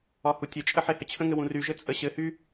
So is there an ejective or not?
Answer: yes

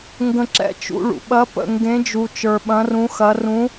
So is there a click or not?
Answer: yes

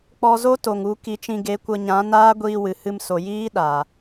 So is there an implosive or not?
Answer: yes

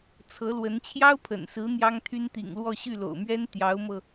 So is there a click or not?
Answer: no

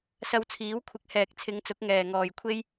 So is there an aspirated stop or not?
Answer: yes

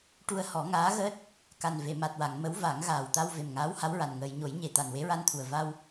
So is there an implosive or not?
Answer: no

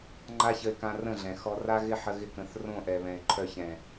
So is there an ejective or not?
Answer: no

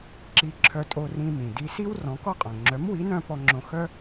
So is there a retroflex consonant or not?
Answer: no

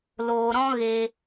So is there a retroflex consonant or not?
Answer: no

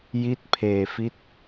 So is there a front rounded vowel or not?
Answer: no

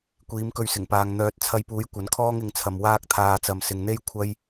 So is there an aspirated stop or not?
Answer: yes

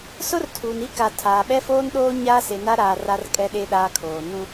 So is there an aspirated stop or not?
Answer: yes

